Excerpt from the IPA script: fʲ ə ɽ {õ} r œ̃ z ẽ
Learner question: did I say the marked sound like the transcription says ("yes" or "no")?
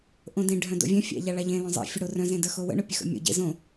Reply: no